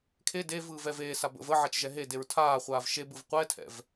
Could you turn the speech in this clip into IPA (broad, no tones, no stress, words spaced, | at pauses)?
kʰe devɯːv ɛveːsa bə̰v ə ʕat͡ʃʒɛɦedeɹ tʰaːχʷaːv ʃebɯv qʷɛtʰɛ̰v